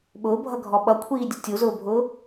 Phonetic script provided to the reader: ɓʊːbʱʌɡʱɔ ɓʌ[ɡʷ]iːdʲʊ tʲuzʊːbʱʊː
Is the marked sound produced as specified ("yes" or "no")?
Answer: no